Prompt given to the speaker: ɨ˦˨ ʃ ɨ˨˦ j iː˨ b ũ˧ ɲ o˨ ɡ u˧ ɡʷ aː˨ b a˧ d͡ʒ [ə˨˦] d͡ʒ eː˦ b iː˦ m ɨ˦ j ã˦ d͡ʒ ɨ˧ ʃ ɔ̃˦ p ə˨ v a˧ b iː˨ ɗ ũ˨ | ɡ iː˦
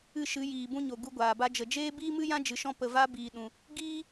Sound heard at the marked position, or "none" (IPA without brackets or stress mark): ə˨